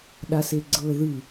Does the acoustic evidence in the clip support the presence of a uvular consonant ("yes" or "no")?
no